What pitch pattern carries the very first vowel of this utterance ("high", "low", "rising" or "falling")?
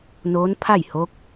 rising